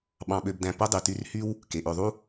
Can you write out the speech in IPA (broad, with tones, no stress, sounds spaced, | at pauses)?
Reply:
ɓ ɑ̃˨ ɓ ø˨ b d æ̃˨ p o˥ dˤ y˩ t y˦ r h y˥ w | k e˩ ʔ ø˨ ðˤ u˥